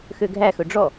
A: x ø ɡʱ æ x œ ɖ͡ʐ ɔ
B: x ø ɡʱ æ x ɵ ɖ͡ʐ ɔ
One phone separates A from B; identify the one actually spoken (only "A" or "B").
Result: B